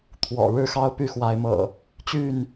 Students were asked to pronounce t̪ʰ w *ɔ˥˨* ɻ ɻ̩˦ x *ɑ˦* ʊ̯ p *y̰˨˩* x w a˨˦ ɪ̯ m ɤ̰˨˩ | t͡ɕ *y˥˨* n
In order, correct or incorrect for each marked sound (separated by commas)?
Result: incorrect, correct, incorrect, correct